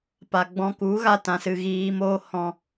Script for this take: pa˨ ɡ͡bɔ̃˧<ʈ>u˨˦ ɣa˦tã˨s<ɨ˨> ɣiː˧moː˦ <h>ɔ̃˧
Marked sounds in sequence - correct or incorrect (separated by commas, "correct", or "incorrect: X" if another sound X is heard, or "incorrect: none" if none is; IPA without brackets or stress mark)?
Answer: incorrect: k, correct, correct